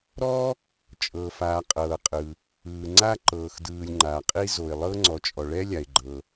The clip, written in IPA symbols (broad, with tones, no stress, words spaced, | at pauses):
ɾɔ˥ | t͡ʃʼɤ˩faː˩ qʼɤː˩qʼɯ˩ | ɯː˩ŋ͡ǀa˥ ǃɤː˩xdɯː˩lʲ ŋ͡ǃa˩qʼi˥ zo˩ɪ̯lˠɤ˥ ŋ͡ǀɔ˩t͡ʃʼɔ˩ɭɛ˥ lʲa˩ɪ̯ɡ͡ǃɤ˩